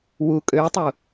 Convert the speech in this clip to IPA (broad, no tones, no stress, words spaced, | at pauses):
wu kʼøtˤu